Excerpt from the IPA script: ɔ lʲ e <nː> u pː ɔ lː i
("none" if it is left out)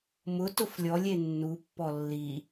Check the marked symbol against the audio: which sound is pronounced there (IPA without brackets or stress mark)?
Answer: nː